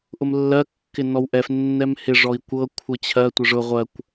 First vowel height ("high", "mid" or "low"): high